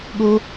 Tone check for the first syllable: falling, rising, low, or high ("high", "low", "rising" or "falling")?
high